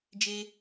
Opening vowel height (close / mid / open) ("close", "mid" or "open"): mid